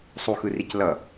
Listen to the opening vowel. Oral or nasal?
oral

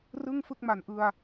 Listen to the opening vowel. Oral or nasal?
oral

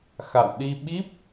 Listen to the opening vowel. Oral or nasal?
oral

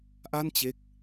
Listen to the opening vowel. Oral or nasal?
oral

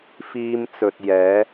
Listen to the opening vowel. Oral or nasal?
oral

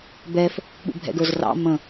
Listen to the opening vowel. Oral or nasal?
oral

